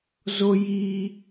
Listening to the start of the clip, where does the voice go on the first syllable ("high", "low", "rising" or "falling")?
low